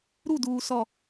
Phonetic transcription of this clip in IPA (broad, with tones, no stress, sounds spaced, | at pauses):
ɾ u˦˨ d uː˨ s ɔ˨